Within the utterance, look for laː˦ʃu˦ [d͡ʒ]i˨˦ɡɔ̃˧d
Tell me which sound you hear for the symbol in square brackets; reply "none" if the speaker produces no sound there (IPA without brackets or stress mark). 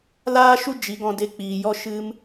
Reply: d͡ʒ